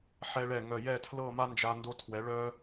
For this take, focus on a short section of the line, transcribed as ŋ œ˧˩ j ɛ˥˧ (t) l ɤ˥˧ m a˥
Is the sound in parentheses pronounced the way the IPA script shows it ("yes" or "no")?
no